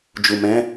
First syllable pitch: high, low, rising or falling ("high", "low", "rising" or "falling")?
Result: low